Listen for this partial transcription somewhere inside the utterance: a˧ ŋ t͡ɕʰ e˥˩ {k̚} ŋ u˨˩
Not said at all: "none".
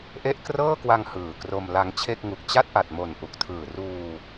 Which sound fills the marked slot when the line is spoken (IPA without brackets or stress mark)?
k̚